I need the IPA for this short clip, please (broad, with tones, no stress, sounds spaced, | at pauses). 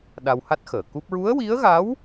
ɗ a˧ w h a˦˥ t̚ x əː˨˩˨ k u˦˥ p̚ ɹ u˧˥ ə̯ w i˧˥ ə̯ ɣ a˧˥ w